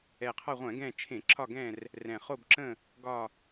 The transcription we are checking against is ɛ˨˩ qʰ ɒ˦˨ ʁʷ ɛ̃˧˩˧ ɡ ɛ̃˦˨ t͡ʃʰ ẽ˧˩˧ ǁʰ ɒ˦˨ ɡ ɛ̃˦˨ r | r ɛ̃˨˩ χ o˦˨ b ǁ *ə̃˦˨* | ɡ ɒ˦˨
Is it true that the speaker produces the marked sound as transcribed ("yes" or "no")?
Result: yes